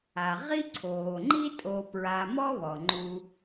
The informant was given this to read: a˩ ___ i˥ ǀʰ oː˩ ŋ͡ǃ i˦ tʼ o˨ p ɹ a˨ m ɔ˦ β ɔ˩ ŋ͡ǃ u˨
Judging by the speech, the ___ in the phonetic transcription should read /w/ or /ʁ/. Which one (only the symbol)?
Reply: ʁ